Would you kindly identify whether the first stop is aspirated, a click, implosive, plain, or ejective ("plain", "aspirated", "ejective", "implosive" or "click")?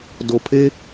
plain